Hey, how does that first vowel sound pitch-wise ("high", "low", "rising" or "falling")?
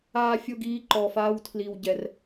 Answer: high